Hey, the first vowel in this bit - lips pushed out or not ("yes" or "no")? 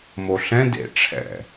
yes